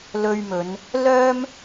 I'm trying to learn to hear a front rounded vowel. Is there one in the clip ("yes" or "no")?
yes